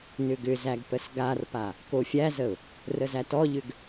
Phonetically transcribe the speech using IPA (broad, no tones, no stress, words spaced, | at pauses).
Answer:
nʏɡʏzæɡ pəsɡarpa | kofʲæzəʊ̯ | rəzætɔʎʏɡ